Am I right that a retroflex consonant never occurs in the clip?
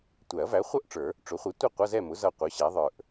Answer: no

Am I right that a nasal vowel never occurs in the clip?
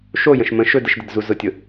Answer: no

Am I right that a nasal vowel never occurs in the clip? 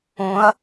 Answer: no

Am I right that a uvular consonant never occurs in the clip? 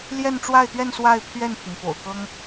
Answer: yes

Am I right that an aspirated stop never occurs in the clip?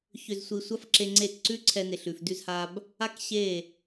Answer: no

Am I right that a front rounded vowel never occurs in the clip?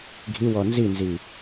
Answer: yes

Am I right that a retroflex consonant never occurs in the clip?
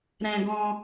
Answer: yes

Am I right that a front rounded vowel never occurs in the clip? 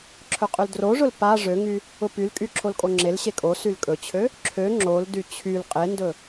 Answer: no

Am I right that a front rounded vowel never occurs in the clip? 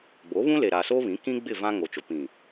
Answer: yes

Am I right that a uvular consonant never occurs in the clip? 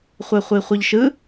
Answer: no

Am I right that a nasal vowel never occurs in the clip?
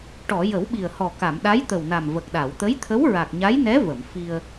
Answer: yes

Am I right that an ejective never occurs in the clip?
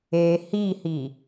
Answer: yes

